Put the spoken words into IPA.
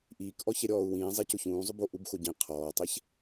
ʔ iː k ʔ ɔ ç ɛ ɾʲ ɔː u̯ w ĩː zˤ ɛ c ʊ ç ũː zˤ ʊ b o ʔ u b x o ɟ ĩ qʰ ɔː tˤ ɛ ç

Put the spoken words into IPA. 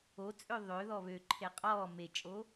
o t͡sʼ ø ðˤ ø ð ɔ β ø ǃʰ e qʼ ɔː m e t͡ʃʼ o

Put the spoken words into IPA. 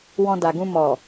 w ɔ̃˧ d a˨ ɡ ũ˧ m ɔ˨

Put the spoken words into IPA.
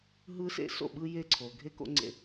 ɦ ɯ˦ s ḛ˦ s o̰˦˨ ɓ ɯ˦ j e˦ ǀʰ o˨ ɡʱ e˦ k o̰˦ ŋ͡ǀ ḛ˦

